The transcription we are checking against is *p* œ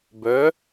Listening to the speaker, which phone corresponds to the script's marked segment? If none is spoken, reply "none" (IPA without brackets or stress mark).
b